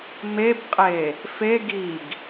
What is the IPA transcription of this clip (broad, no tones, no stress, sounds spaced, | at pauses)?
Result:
m e b qʼ e | f e ɡ i ɡ